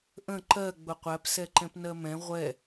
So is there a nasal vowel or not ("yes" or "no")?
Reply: yes